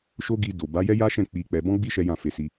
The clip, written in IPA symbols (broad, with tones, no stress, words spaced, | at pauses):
ʃo˦ɡi˧do˨ ba˨˦jɛ˦ja˦ʃɛ̃˦˨ k͡pi˧k͡pɛ˧ bɔ̃˦ɡ͡bi˦ ʃɛ˦jã˦˨fe˧si˧